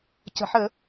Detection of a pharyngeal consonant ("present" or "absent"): present